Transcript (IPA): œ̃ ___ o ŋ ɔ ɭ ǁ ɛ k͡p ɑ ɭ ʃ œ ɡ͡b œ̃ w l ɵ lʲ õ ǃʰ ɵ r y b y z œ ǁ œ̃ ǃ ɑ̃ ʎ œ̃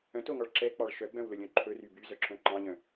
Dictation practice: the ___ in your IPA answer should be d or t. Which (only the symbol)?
t